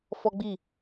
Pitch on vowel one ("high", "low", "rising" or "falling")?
high